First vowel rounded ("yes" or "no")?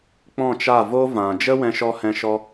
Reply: yes